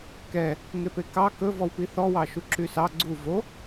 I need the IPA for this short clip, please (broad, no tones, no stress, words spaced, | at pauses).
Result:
kɛ | ŋepekɑ kɵ vɔwpiθɔ wɑʃuǁysɑ ɡ͡ǀu vo